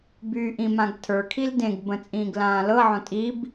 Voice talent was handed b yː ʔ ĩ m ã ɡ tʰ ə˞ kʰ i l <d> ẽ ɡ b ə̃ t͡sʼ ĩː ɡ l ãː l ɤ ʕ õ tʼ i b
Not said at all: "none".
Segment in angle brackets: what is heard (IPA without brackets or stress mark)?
d